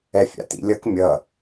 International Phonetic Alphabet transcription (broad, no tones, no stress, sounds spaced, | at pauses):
ɛ fʲ a̰ t ḭ lʲ ʌ k mʲ ʌ